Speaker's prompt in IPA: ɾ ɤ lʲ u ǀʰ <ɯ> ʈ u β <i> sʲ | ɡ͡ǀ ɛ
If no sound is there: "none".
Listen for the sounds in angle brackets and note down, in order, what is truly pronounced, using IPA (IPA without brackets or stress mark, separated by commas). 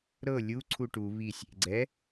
u, i